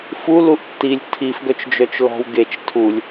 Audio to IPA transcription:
f u l u ʔ tː i lʲ tʰ i f ɡ œ t͡ʃ d͡ʒ œ t͡ʃ l ɔ̤ w ɡ e t͡ʃ tʰ u lʲ

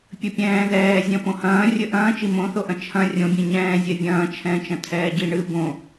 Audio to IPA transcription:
pʲ ɘ pʲ ɛ̃ː ð ɛː zʲ ɐ̃ p õ h ɐ̃ː rʲ ɘ ʔ ɐ̃ː t͡ʃ i m õ θ o ʔ ɐ̃ t͡ʃʰ ɐ̃ rʲ õ bʲ ɛ̃ ɲ ɛ̃ː zʲ ɛ vʲ ɐ̃ː t͡ʃʰ ɛ̃ː t͡ʃ ɐ̃ tʰ ɛː ɟ i ɳ ɨ b õ

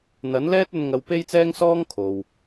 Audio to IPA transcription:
n̪ ɐ˨˥ n l ɛː˥ t̚ ɵ˧ n ŋ ɐ˧ w p e˥ j t͡s ɛː˥ ŋ s ɔː˥ ŋ kʰ o˨ w

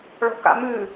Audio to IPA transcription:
ɭ ɔ̤ k a̰ m ʉ

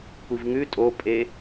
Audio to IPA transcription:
kʷ i v ŋ ʉ tʼ o pʼ e

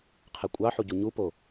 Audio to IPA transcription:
qʰ e kʷʼ ɑ ħ u ɟ u ɲ u p o

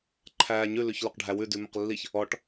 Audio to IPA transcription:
ǃʰ æː ɲ ʉ l ʉ ç l ɵ q ɖʱ æ w ʉ d ʉ m ɵ q lː i ç | ɔ ʈ

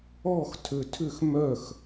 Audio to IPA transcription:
ɔ x tʰ ø tʰ ʏ x m œ x

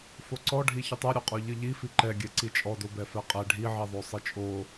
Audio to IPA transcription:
f o ǀ ɔ ɖʱ i ç ɨ tˤ ɛ ɾʲ o qʼ ɔ ʎ ɨ ʎ i f i ǃ ɛ ɡʲ ɛ ǀ i t͡ʃʼ ɔ d o b ɛ f ɛ qʼ ɛ ɖʱ i ʕ i ðˤ o sˤ ɨ t͡ʃʼ o

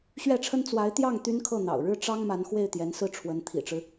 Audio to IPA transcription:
ɕ ɥ ɛ˥˩ ʈ͡ʂʰ ə˥ n t͡s w a˧˥ ɪ̯ t̪ j ɑ˥˩ ŋ t̪ y˥ n kʰ ɤ˥˩ n̪ ɑ̰˨˩ ʊ̯ ɻ ɻ̩˥˩ ʈ͡ʂ ɑ˥ ŋ m a˧˥ n x w e˥˩ ɪ̯ t̪ j ɛ˧˥ n s ɹ̩˥˩ ʈ͡ʂʰ w ə˧˥ n t̪ʰ ḭ˨˩ ʈ͡ʂ ɻ̩˦

